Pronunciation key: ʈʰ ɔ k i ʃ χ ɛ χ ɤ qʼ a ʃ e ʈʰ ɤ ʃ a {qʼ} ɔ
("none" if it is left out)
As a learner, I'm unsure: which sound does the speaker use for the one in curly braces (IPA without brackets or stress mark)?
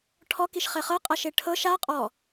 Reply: qʼ